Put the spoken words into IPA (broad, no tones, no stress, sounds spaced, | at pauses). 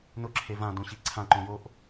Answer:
n ʊ ǁʰ e v ã d õ ɕ i ǀʰ ã ǃ õ j o ʔ